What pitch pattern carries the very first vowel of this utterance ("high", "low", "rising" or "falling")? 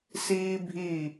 high